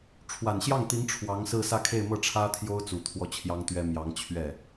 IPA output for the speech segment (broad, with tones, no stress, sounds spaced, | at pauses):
ʈ͡ʂʰ w a˨˩ n ɕ j ɑ˥˩ ŋ t̪ i˧˥ ŋ ʈ͡ʂʰ w ɑ˧˥ ŋ s ɹ̩˥˧ s ä˥˧ kʰ e˥˧ ɪ̯ m ɤ˥˩ ʈ͡ʂʰ ä˥ t̪ʰ j o˥ ʊ̯ t͡s u˨˩ t̪ʰ w ɔ˥˩ t͡ɕʰ j ɑ˥ ŋ t̪ ɥ ɛ˥ m j ɑ˧˥ ŋ t͡ɕʰ ɥ ɛ˥˩